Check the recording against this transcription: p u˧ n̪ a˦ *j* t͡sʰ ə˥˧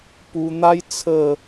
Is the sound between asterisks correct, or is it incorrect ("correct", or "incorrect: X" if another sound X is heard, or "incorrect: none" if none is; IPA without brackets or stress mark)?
correct